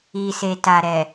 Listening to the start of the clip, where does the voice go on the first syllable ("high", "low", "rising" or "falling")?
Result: low